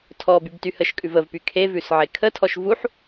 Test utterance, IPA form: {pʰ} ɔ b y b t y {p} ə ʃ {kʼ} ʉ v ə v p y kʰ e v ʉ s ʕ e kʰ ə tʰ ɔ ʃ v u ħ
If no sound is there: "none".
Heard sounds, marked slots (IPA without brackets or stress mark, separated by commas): tʰ, h, kʼ